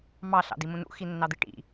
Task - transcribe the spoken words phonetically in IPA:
m ɑ ɬ ɑ̰ d i m ũ n ṵ x i nː ɑ d̪ i ʈ ḭ

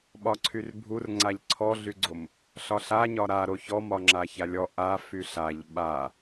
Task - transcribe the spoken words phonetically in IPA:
ɓ ɒ ǀʰ y r bʱ u r ŋ͡ǀ a ʎ ǀʰ ɔ ɮ y ɡ͡ǀ o m | ɬ ɒ ɬ a ɲ ɒ ɾ a ɾ o ç ɔ m ɒ ŋ͡ǁ a ç a lʲ ɔ ʔ a f y ɬ a ʎ ɓ a

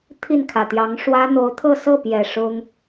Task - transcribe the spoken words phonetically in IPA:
t̪ʰ i˥˩ n kʰ ä˨˩ t̪ j ɑ˧˥ ŋ ʂ w ä˥ n̪ o˧˥ ʊ̯ t̪ʰ ɤ˥˧ s ɤ˥˩ p j ɛ˨˩ ʂ ʊ˥ ŋ

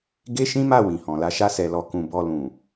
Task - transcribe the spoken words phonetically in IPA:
ɡ e˦ ʃ ĩ˦ m a˦˨ w ĩ˨ h ɔ̃˨ l a˨˦ ʃ a˦ s ɛ˧ l ɔ˧ k ũ˧ b ɔ˧ l ũ˨

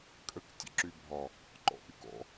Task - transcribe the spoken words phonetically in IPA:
kʼ ə k tʲ ə̰ ǁ y bʱ ɒ | ǃ ɔ̰ ʔ y k ɔ̰

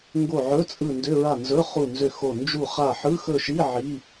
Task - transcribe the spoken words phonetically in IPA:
ŋ ɡ o˦˨ ʕ ɵ˧˥˧ t͡sʼ ɯ˦˨ n d ʏ˧˥˧ ɹ a˦˨ n z ɵ˧˥˧ χ u˦˨ n z ʏ˦˨ x o˦˨ n d͡ʒ u˦˨ χ a˦˨ ħ ɯ˧˥˧ x ɵ˦˨ ʃ i˧˥˧ ʕ i˧˥˧

